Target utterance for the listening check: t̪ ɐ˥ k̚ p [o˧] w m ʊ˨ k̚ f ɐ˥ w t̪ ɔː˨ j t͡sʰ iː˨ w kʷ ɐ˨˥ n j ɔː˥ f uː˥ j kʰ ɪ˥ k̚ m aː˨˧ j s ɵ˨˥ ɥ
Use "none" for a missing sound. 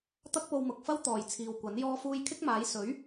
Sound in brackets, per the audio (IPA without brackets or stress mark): o˧